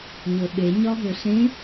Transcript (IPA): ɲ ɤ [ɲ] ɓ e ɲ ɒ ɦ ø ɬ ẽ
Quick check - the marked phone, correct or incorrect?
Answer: incorrect